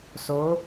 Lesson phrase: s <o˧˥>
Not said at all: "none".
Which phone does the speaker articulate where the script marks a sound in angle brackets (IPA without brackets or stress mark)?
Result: o˧˥